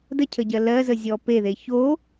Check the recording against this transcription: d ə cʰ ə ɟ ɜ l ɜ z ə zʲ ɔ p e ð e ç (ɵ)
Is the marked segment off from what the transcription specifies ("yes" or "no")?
yes